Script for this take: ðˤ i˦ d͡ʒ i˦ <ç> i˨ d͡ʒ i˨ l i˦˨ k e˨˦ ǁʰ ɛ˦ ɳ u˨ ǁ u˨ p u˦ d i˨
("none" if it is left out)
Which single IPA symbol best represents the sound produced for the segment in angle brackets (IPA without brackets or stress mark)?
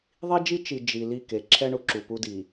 t͡ʃ